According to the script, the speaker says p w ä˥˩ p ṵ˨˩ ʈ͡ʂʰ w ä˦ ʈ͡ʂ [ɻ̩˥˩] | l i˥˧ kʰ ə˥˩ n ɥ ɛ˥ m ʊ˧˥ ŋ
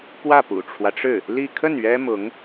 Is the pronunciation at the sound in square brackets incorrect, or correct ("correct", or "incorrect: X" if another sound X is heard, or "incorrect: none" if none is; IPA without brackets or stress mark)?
correct